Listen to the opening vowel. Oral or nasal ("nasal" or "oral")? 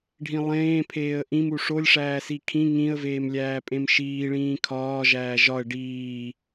nasal